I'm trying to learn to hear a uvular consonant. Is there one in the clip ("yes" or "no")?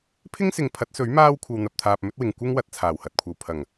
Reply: no